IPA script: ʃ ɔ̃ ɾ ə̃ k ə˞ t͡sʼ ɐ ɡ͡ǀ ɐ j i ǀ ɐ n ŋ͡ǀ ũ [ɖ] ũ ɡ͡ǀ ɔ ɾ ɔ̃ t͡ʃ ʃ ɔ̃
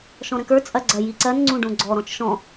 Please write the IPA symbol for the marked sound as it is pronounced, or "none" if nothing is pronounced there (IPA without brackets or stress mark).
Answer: ɖ